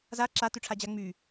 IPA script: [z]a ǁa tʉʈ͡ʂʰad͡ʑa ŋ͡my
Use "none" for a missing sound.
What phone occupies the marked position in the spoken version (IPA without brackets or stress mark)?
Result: z